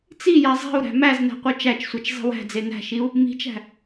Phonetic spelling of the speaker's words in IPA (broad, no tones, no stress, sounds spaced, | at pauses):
t͡s i j a zˤ i̤ u̯ ɾ æ̤ m æ z n æ̤ qʷ œ t͡ʃ æ t͡ʃ sʷ a t͡ʃ zˤ i̤ w æ̤ d͡z e n æ̤ ʃ i u̯ | m i̤ t͡ʃ æ̤